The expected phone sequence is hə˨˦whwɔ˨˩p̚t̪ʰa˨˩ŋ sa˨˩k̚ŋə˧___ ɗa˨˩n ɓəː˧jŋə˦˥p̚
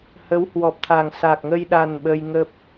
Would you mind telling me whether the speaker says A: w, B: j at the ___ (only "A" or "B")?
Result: B